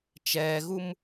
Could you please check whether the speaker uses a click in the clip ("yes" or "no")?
no